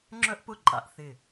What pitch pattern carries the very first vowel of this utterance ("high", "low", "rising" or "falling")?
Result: high